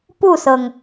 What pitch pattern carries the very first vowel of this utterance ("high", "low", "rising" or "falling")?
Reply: falling